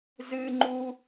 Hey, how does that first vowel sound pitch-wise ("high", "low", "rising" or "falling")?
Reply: high